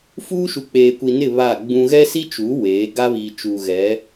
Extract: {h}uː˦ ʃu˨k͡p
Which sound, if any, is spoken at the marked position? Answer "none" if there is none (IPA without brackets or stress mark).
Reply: f